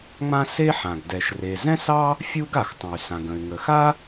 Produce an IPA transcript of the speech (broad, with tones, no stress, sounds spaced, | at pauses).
ŋ͡m ã˥ s e˥ ħ ã˩ ɡ d ɛ˩ ʃ r e˩ z ɛ̃˥ s ɑ˥ | fʲ u˥ ɡ a˩ x tˤ ə̃˩ y̯ s ã˩ ɡ ə̃˩ y̯ ŋ ə˩ x a˥